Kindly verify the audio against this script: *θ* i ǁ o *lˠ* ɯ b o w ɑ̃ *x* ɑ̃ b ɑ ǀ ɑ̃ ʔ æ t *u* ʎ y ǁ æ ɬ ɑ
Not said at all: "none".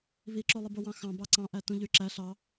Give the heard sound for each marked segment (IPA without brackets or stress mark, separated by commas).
β, lˠ, x, ũ